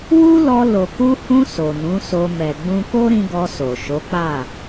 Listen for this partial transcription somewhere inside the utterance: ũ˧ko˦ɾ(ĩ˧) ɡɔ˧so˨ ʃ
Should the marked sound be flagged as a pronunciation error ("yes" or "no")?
no